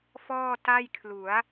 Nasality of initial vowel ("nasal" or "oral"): oral